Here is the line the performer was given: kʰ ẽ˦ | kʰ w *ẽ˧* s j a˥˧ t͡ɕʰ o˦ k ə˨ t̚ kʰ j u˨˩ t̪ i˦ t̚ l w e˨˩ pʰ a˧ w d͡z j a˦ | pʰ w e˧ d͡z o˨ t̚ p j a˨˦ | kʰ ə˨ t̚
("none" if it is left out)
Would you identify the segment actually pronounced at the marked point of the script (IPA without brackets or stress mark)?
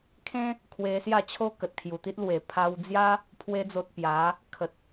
e˧